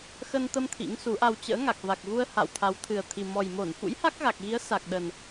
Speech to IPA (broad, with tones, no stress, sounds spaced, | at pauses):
x ə˧ n t̪ ə˧ m t̪ʰ ḭ˧˥ ŋ s u˨˦ ʔ a˧ w t͡ɕ ə̰ː˧˥ ŋ a˨˩ k̚ v a˨˩ k̚ ɣ u˧ ə̯ h a̰˧˨ w t̪ʰ a˨˦ w t̪ʰ ɨ˨˩ ə̯ t̪ʰ i˨˩ m ɔ˨˩ j m o˧˩ n f ṵ˧˥ j h a˦˥ k̚ ɣ a˨˩ k̚ ɣ i˨˦ ə̯ s a˨˩ k̚ ɗ ə˨˩ n